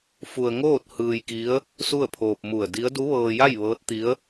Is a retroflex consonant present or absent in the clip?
absent